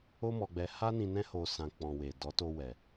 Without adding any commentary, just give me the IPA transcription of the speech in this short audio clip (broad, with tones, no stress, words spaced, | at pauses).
o˦mɔ˧ɡ͡bɛ˧ ha˦ nĩ˧ nɛ̃˦ho˧ sã˧ k͡pɔ̃˨we˨ dɔ˨˦to˧wɛ˨